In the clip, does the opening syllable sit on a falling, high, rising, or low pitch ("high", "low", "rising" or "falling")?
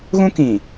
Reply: high